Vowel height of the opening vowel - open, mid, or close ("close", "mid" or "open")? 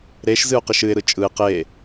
mid